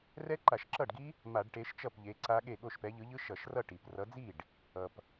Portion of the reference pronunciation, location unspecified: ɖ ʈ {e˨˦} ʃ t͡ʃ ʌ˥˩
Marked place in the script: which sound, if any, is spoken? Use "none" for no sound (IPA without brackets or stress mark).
e˨˦